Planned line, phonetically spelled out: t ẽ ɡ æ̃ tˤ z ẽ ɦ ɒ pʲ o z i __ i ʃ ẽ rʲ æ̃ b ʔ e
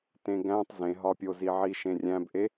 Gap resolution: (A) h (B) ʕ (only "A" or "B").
B